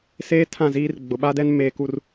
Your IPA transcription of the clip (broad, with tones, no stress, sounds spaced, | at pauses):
s eː˦ tʰ ã˦˨ z iː˦ r ɡ͡b ʊ˨ ɓ a˦ d ɛ˦ n m eː˨ k u˦˨ r